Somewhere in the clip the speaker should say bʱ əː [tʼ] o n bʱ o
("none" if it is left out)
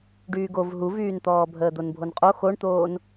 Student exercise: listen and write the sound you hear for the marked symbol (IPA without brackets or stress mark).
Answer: d̪